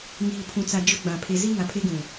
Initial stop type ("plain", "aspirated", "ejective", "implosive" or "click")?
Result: aspirated